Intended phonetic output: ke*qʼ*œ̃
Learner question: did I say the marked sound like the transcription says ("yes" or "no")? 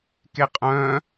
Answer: yes